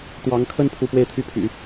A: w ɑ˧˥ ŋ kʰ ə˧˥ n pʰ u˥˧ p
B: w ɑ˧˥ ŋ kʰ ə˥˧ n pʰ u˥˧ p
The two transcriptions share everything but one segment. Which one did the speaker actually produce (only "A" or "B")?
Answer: B